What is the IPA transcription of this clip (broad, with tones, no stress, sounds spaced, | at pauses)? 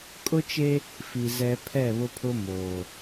kʼ ʊ˦ t͡ʃ e˦ | f i˨ z ɛ˦ pʰ ɛ˦˨ β ʊ˦ pʰ ʊ˦ m oː˨